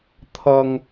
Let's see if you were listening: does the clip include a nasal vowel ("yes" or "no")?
no